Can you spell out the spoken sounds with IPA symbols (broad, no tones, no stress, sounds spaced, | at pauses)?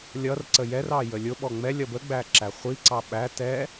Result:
lʲ ʌ r ǀ ə j ɛ r ɑ j ə lʲ ʊ ɓ ɔ ŋ͡m ɛ lʲ ʌ b ə ɡ͡b æ ǁ æ χʷ i ǀ ɑ ɓ æ t ɛ